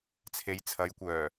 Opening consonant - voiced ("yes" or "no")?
no